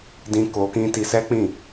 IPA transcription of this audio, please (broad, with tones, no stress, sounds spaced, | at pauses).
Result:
d ĩ˧ k o˧ k ĩ˦ t i˧ s ɛ˦ k͡p ĩ˦˨